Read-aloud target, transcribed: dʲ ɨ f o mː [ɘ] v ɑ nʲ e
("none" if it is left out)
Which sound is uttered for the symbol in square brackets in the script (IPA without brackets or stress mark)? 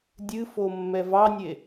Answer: ɛ